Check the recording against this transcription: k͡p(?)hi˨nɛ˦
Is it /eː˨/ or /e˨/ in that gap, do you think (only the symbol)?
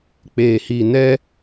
eː˨